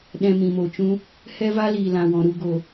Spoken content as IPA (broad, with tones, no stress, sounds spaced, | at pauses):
ɗ ɛ̃˧ m ĩ˨ m o˨ t͡ʃ ũ˦ | h ɛ˦ v a˦ l iː˨ l ã˨ w ɔ̃˨ ɾ u˧ ɡ o˨